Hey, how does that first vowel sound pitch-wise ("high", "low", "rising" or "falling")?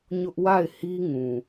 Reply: high